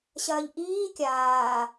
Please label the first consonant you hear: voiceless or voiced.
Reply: voiceless